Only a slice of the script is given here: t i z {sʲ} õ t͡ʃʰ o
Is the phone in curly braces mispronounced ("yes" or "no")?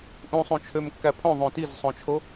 yes